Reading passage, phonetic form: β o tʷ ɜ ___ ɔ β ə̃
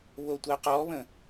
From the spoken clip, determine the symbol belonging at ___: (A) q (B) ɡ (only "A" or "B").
A